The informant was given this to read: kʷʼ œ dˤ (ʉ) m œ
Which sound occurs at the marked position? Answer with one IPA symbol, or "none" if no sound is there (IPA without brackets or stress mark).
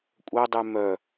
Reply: ʉ